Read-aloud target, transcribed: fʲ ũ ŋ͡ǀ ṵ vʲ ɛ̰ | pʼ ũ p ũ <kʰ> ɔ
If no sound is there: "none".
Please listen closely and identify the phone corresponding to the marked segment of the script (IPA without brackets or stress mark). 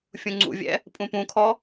kʰ